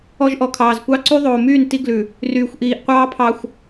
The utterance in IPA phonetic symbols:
ɔ˦ ʒ ʔ ɔ˨ kʰ ɑː˨ z kʷ ɑ˦ ǀ y˦ ðˤ oː˨ m yː˦˨ n t i˦ ɡ l ʉ˨ | r yː˨ xʷ ʔ iː˨ ʔ qʷ ɑː˦ pʰ ɑ˨ xʷ

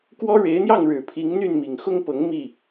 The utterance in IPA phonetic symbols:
k w ɔ˥ ɻ e˧˥ ɪ̯ n̪ j ɑ˥˩ ŋ ɻ ɻ̩˨˩ pʰ i˧˥ ŋ n̪ y˥˩ n m i˨˩ ŋ x ʊ˥ ŋ p ɤ˧˥ ŋ m i˥˩

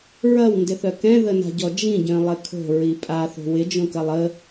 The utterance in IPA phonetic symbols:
ɹ ɐ w n d ɪ θ œ k ɛ̃ ð ə n a̤ ɟ ɔ d͡ʒ ĩ ɟ œ̃ lˠ ɪ kʰ o̤ ɹ i pʼ a θ o̤ w ɪ d͡ʒ õ k ɐ lˠ ə

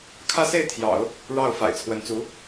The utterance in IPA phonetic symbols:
kʰ ä˥˧ s e˥˩ ɪ̯ t̪ʰ j ɑ̰˨˩˦ ʊ̯ | ɻ ɑ˥˩ ʊ̯ f a̰˨˩ ɪ̯ t͡sʰ w ə˧˥ n t͡s u˧˥

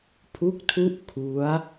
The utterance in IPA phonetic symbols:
pʰ u˦˥ k̚ tʰ u˦˥ ʔ kʰ u˦˥ a̯

